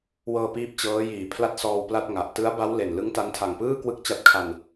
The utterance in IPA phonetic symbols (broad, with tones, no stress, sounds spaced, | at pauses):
w ɤː˧ p iː˥˩ p̚ t͡ɕ ɤː˦˥ j iː˨˩ pʰ l a˥˩ t̚ s ɔː˧ w p l a˥˩ t̚ ŋ a˨˩ ʔ t ɯ˦˥ a̯ b a˦˥ w l e˨˩ n l ɯ˦˥ ŋ t a˦˥ n tʰ a˨˩ ŋ p ɯː˥˩ k w ɯ˥˩ k̚ t͡ɕ a˦˥ t̚ kʰ a˧ n